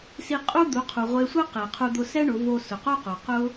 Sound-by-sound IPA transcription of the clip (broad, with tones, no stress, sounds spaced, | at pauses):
s i˧ qʼ u˥ d̪ u˩˧ qʰ u˩ ʁʷ e˧ sʷ ɛ˥ q ɛ˩ qʰ u˧ d̪ ʊ˧ s ɛ˥ ɳ ʊ˩˧ v o˧ s ʊ˩ q o˥ q o˩ q ʊ˥